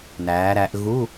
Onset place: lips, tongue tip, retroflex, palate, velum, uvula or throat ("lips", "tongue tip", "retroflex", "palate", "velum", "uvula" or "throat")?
tongue tip